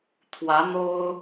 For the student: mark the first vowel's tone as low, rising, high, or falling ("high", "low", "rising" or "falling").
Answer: rising